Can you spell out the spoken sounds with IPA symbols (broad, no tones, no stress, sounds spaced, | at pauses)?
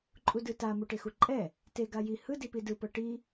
ǃʼ u d ɯ t a m u ʈ e x u ǃʼ ɛ | t e ɡ a j i h ɯ d i p i d ɯ p ɤ ʈ i